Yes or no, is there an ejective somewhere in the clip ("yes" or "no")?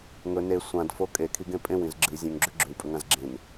yes